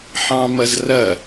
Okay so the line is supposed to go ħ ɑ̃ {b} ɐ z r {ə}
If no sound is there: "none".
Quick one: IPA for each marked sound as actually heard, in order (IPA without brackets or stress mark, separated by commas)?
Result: m, ɐ